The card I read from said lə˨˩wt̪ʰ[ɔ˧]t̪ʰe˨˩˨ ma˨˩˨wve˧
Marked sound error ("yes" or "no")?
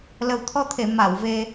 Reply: no